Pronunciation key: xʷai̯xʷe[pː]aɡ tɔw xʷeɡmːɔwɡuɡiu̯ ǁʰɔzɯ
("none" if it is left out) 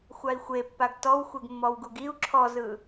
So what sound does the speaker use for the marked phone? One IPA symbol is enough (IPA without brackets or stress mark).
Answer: pː